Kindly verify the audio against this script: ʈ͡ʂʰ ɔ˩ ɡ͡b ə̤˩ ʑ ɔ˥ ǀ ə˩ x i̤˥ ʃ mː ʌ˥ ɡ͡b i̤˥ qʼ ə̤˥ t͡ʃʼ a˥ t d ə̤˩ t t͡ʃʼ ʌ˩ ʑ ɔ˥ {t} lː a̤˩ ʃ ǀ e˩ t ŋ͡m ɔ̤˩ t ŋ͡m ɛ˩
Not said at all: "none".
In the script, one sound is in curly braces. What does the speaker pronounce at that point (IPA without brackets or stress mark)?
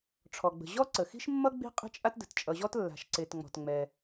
t